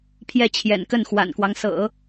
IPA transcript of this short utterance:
pʰ j ɛ˥˩ t͡ɕʰ j ɛ̰˨˩ n k ə˥˩ n x w a̰˨˩ n k w ɑ˦ ŋ s ɤ̰˨˩˦

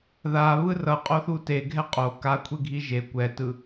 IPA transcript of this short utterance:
ð a β ɯ r ʌ qʼ o θ u t e ɡʱ ɛ qʼ o k a kʷʰ e ɡʱ i ʒ e kʷ ɛ t ɯ

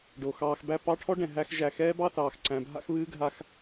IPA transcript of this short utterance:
ɖ oː˩ x ɑː˨ x b æ˦ p ɑ˦ ʈʰ ɔ˥ ɖ ɛ̃˩ ɦ æ˦ x ʒ æ˨ x ɛː˥ b ɑ˥ θ ɑː˩ x ǀ æ̃˨ bʱ a̰˦ x β ɨː˥ ɡʱ a˦ x

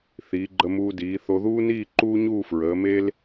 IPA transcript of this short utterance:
θ iː˩˧ ɡ͡ǃ ə˧ m uː˧ d iː˩˧ θ o˧ ð uː˥ n iː˥˧ ǃ uː˥ ɲ uː˥˧ f ɹ əː˩˧ m e˥ l

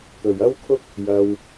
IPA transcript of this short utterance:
t̪ ɵ˨ ɥ ɐ˥ w kʰ ʊ˥ k̚ | j ɐ˧ w

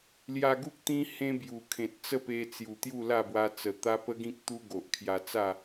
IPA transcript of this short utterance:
l j a˧ ɡ u˦ k̚ t̪ ĩ˦ h ẽ˦ b j u˨˩ kʰ ẽ˨ t̚ t͡s ə˥˧ p e˧ t͡s j u˨˩ t̪ j u˥˧ l a˥˧ b w a˧ t͡s ə˨˩ t̪ a˦ p ə˦ ɡ ĩ˦ k̚ t̪ u˦ ɡ o˨ ʔ kʰ j a˧ t͡s a˥˧

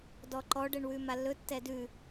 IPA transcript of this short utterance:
d ɔ ǃ ɔ ɖ ɛ ɳ w ʉ m a lː ɵ tː ɛ d ʉ

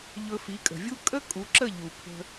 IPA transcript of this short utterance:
ʎ ɵ˧ f i˨˦ kʼ ə̤˨ vʲ u˦ kʼ ə˦ kʼ u˨˦ ǁ ə˦˨ ʎ u˨ pʰ ə̤˧

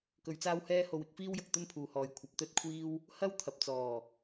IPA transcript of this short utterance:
k ɵ˧ ɥ t͡s aː˥ w h ɛː˥ h o˧ w ɪ˨˥ k̚ f iː˥ w j ɐ˨ k̚ t̪ ɵ˥ n pʰ uː˨ h ɔː˨ j kʷʰ ɐ˨ p̚ t̪ ɵ˥ t̚ kʷʰ iː˥ w | h ɐ˥ w t̪ʰ ɐ˨ p̚ t͡s ɔː˨˩

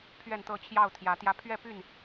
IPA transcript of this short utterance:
pʰ ɥ ɛ˥˨ n t̪ ɤ˥˨ t͡ɕʰ j ɑ˥˨ ʊ̯ t̪ʰ j ä˨˦ t̪ j ä˦ pʰ ɥ ɛ˥˨ p y˥˨ n

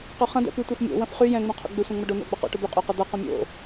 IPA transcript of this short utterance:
q ø χ ɐ̃ d̪ ɛ̰ p y tʷ ɛ f mʲ o̰ w ɐ̃ f χ y j ɛ̃ ŋ͡m õ qʰ o̰ ɡ͡b ɪ sʷ ɛ̃ ŋ͡m ɐ ɖ o n̪ o̰ ɡ͡b ɐ q o̰ ʈ o b y qʼ o q ɐ d̪ ɐ q õ mʲ o̰

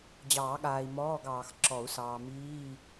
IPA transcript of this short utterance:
d͡ʑ ɑː˨˩˦ ɠ aː˨ i̯ m ɔː˧˥˧ ɡ ɑː˨ x ǁ ɔ˨˩˦ u̯ s ɑː˨ m iː˧˥˧

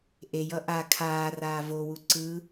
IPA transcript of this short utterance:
ʔ e j ʌ ʔ a kʰ aː r aː v o w u ǀ ɯ

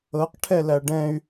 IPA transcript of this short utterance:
ɤ q ʈʰ ɛ l æ ɖ ɛ̃ y̯

